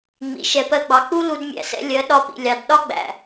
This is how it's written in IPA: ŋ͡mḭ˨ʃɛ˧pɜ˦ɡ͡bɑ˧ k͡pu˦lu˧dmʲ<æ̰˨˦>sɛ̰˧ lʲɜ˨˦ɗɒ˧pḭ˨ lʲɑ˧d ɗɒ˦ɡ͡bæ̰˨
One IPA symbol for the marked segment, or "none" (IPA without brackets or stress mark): æ̰˨